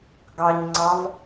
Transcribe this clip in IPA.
ɡ ɑ ɲ ŋ͡ǀ ɑ v

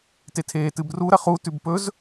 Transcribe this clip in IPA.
t e tʰ eː t ɨ b r u ɾ ɐ χ u t ʉ b p ɵ z

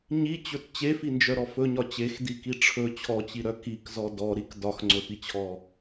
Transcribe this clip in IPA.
ɲ i t͡ɕ ɵ t t͡ɕ e f i n d͡ʒ œ ɾ ɔ f ɵ ɲ ɒ t͡ɕ e x d i k i ʈ͡ʂʰ ɵ t͡ɕʰ ɔ t͡ɕ i ɾ œ k i k z ɔ d ɔ ɾ i k d ɒ x ŋ͡ǀ ɵ f i t͡ɕʰ ɔ

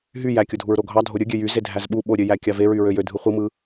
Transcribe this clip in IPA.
ɦ y j æ kʲ o dʱ u ɹ ɾ o ɡʱ ɑ dʱ o ɾʲ ɯ ɡʲ ø j y z e dʱ æ z ɓ u ɓ o ɾʲ ø j æ kʲ ɑ v e ɹ y ɹ ø j ø dʱ ɯ χʷ ɯ m ɯ

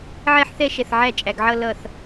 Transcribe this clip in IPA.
ʕ ɛ˥˧ ħ θ ɛ˥˧ ʃ ɛ˧˩ θ ʕ æ˥˧ t͡ʃʼ æ˩˧ ɡ ʕ ʌ˥˧ l ʌ˧˩ θ

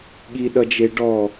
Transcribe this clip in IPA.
ɠ i ɗ ʌ d͡ʒ e ɖ ɔ

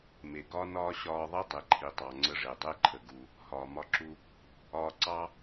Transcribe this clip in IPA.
m e˩ ɡ ɒ˥ n ɒː˥ ɕ ɒː˧ ðˤ i˥ dˤ e˩ ǃʰ i˩ tˤ ɑ˩ ŋ͡ǀ ə˧ ʐ e˩ dˤ e˥ ǃʰ ə˩ ɡ u˩ | h ɒː˩ m ɒ˧ ǁ u˧ | ɒː˧ ǀ ɑ˥

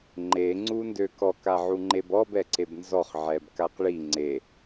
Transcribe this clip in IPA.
ŋ͡ǃ e ŋ͡ǀ u n d ø k ɔ k a ʕ u ŋ͡ǃ e b ɔ b ɛ ǀ e b n z ɔ χ ʕ ɛ b k a q ɭ i ŋ͡ǀ e

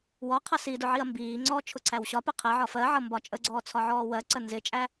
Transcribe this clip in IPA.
w ɔ qʰ ɜ s i d ʊ ʕ i ɐ̯ m b iː ŋ͡ǀ ɔː t͡ʃʰ ʊ ǀʰ æ w ɕ ɒ p ɪ qʰ ɛ ʕ ɒ f ɜ ʕ ʌ m b ɒ t͡ʃʼ ə ɡ͡ǀ ɔː t͡sʰ ɒ ʕ ɔː w ɜ ǀ ə n z ɪ t͡ʃʼ æ

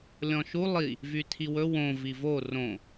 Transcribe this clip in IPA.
lʲ ɔ̃ ʃ u lˠ i | v y tʰ i w ɵ w õ v i v o r õ

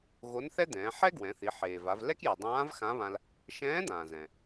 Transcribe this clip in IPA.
ɣ o˧˥ n θ ɛ˥ d̪ ɛ̃ː˩˧ ħ ɛ˥ ɡ w ɛ̃˩˧ θ i˩˧ ħ eː˩ v a˩˧ v l ɛ˥ k j i˩ dˤ ãː˧˥ v x ã˧˥ β ã˧ l | ʃ ɛ̃ː˧˥ d̪ ãː˩ z ɛ̃˩

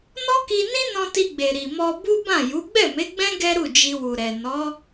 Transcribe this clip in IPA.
n ɔ˦ k i˧ n ĩ˦ n ɔ̃˧ t i˧ ɡ͡b e˨ ɾ i˨ m ɔ˧ b u˦ b ã˦˨ j u˨˦ ɡ͡b ɛ˦˨ m e˨˦ ɡ͡b ɛ̃˦ ɡ ɛ˦ ɾ u˦˨ d͡ʒ i˧ w u˨ ɾ ɛ˨ n ɔ˨˦

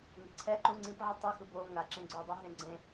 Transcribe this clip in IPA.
ŋ e̤ ǀʰ ɛ ǃ ũ ŋ͡ǀ ĩ p ʕ ɯ tˤ ʌ x ɯ b o ŋ a ǁ ẽ ɡ͡ǀ o dˤ u ɦ ẽ ɡ͡ǀ ẽ

